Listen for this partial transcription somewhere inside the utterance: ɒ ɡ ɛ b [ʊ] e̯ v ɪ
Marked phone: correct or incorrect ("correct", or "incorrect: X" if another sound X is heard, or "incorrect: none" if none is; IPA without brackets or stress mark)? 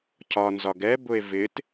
correct